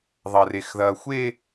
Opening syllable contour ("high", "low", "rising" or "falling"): high